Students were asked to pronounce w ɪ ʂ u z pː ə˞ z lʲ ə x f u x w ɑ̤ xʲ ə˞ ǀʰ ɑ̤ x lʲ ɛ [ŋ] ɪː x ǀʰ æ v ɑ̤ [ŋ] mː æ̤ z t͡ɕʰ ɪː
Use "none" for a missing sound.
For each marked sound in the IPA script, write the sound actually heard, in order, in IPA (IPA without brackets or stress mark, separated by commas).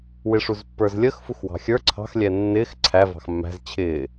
nː, x